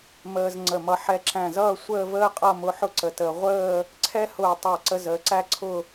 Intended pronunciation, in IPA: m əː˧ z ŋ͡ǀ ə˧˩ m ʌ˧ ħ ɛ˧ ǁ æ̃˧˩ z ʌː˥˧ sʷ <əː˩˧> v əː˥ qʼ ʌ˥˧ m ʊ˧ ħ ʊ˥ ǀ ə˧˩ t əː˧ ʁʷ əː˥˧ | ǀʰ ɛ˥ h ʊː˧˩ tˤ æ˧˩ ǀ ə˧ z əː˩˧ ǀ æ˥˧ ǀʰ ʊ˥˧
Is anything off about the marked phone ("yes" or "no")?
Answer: yes